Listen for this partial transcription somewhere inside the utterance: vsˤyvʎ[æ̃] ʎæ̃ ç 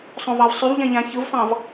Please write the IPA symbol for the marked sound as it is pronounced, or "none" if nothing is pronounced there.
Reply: æ̃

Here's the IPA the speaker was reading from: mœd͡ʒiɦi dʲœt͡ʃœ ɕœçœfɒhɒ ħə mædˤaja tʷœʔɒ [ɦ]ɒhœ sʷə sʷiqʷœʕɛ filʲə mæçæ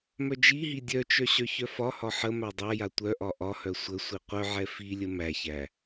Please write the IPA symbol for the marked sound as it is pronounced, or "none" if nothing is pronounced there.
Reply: ʔ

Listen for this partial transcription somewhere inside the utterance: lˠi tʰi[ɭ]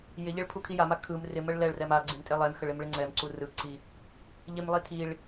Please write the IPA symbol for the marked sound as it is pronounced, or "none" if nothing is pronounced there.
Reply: ɭ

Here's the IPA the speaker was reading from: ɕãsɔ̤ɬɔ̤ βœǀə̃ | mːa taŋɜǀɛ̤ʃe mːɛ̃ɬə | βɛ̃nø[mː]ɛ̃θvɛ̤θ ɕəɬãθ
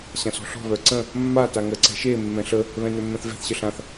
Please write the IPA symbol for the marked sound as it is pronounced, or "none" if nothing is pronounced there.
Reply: mː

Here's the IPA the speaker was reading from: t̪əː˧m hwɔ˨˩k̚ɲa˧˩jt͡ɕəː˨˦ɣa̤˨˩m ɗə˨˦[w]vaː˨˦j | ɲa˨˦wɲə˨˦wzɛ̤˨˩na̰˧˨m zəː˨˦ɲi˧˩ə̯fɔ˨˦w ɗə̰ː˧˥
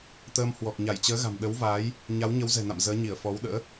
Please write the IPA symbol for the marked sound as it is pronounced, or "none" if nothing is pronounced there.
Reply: w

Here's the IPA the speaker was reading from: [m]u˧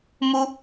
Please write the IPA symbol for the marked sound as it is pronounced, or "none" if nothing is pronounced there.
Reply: m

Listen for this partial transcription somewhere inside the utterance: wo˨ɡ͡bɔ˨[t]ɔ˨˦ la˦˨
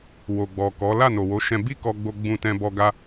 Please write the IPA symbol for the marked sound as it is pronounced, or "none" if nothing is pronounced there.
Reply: k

